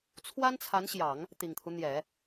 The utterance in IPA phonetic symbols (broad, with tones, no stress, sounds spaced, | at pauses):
t͡sʰ w a˥ n t͡sʰ a˧˥ n ɕ j ɑ˨˩˦ ŋ | t̪ i˨˩ ŋ t̪ʰ u˦ n̪ j ɛ˨˩˦